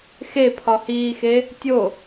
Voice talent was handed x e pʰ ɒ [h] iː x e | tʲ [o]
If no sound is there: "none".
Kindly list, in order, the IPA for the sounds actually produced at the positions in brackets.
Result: h, o

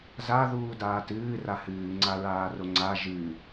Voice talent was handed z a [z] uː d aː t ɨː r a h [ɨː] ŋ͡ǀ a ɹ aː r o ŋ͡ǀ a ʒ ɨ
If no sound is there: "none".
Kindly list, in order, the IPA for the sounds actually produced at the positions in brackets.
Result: ð, ɨː

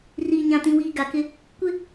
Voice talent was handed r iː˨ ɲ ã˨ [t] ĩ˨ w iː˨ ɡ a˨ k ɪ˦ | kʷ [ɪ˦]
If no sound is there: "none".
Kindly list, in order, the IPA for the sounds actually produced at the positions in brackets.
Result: t, ɪ˦

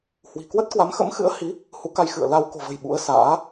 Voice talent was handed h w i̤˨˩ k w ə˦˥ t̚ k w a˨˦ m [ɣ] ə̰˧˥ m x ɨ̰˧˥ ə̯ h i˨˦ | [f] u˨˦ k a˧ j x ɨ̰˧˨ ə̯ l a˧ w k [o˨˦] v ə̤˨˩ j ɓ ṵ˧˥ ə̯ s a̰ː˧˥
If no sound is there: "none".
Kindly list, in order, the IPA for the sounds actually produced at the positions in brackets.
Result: x, h, o̤˨˩

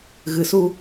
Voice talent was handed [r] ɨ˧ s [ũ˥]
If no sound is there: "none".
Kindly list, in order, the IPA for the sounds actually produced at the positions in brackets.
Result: ɣ, u˥

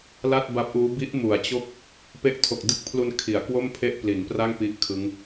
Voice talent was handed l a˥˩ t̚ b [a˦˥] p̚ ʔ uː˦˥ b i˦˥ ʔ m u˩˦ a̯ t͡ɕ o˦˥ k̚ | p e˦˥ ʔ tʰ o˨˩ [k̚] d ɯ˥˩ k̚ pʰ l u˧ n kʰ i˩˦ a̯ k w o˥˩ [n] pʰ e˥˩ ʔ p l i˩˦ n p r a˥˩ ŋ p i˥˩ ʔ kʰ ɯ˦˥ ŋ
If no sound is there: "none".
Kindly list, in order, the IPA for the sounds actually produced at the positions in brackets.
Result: a˦˥, k̚, m

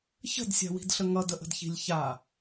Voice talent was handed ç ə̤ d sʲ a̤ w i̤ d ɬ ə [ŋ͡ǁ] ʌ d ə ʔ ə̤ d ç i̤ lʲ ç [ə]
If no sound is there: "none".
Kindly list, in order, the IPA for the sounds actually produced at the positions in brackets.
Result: ŋ, a

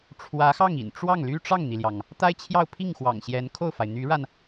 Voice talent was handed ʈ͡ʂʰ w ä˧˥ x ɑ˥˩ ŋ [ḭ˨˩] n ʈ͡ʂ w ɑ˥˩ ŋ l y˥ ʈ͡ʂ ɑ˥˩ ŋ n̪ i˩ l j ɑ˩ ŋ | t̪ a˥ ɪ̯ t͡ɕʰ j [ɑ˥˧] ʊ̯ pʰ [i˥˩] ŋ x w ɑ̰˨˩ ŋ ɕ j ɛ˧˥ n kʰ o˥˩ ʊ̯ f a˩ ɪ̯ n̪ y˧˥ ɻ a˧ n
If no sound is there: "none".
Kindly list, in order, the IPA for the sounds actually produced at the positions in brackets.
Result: ḭ˨˩, ɑ˥˧, i˥˩

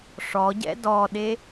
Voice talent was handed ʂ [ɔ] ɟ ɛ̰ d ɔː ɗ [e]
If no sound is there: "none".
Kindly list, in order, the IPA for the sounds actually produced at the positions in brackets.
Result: ɔ, e

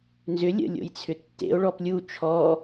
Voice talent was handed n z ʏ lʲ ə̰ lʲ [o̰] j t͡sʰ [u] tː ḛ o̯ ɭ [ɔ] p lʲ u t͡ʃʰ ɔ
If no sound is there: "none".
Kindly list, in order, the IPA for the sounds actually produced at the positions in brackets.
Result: o̰, ʏ, ɔ

